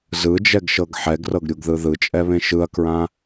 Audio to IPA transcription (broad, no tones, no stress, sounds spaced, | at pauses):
z ɯ d͡ʒ ɛ ɡ ʃ ɤ ɡ ħ ɛ ɡ r ɤ ɡ ɾʲ u ɡ ð ɯ ð ɯ t͡ʃʼ ɛ β ẽ ʃ ɯ ɐ̯ k ɹ ã